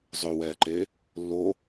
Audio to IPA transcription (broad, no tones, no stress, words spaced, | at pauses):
zˤøwɛːǃe | lːo